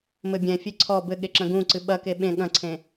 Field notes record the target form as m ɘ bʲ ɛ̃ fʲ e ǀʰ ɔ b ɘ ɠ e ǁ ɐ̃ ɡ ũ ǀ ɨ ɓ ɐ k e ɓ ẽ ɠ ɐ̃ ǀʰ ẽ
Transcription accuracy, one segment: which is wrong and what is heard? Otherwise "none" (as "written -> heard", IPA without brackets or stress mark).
none